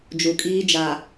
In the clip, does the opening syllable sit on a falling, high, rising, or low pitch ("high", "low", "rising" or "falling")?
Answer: low